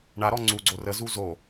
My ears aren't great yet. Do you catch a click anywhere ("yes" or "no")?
yes